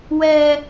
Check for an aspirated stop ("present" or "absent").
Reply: absent